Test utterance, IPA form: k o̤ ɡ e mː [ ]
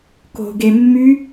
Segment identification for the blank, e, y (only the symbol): y